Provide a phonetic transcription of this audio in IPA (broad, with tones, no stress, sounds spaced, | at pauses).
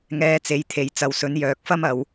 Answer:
ŋ ɛː˧ t͡s e˨˥ j t̪ʰ e˨ j t͡s ɐ˨ w s ɵ˨˥ n j œː˨ k̚ f ɐ˥ m ɐ˨ w